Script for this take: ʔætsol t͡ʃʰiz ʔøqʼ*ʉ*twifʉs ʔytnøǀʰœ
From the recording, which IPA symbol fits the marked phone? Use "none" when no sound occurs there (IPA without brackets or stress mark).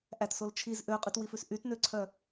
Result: ʉ